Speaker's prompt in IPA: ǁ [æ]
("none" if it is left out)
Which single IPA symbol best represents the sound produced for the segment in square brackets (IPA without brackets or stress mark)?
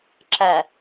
æ